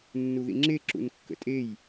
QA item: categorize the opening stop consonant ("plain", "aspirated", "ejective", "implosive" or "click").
click